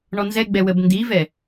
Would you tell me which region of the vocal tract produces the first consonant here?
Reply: retroflex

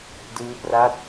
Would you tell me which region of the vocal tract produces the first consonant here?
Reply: tongue tip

